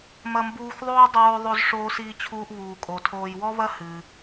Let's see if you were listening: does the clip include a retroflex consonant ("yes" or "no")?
yes